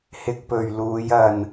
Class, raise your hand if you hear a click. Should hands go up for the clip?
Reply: no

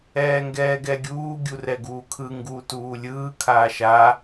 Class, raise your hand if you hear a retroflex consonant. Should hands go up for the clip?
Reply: no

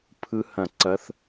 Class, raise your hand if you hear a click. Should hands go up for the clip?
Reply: yes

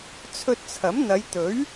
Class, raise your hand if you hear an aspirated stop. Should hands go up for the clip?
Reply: yes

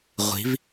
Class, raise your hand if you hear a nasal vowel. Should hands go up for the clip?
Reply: no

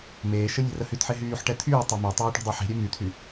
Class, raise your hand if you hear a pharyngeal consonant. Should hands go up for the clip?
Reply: yes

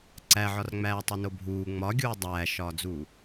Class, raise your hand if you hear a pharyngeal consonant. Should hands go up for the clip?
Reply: yes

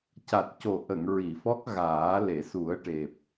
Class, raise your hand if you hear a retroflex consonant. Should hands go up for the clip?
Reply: yes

